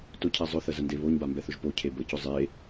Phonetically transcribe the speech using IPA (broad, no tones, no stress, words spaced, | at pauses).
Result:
tʊcʰɛ zˤʊθə zəndeβoɲba mbɛθʊʒpocʰe bəcʊ zˤe